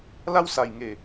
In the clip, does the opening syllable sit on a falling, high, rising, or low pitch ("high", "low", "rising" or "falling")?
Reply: high